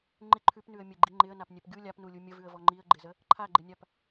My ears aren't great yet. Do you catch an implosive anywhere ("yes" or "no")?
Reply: no